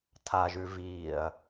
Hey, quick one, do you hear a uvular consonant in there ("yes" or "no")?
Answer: no